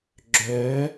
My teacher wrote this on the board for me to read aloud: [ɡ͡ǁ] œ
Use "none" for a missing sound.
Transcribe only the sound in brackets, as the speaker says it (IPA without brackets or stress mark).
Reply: ɡ͡ǁ